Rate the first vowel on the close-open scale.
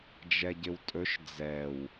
mid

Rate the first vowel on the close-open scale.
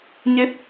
mid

